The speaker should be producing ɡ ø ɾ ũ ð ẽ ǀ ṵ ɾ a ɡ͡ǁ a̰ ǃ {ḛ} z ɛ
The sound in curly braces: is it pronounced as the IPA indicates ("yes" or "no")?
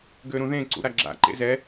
yes